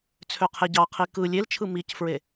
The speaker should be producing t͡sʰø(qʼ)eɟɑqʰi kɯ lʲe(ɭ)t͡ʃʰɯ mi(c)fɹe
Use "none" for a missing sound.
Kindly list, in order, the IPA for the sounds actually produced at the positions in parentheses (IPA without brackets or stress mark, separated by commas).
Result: qʰ, l, c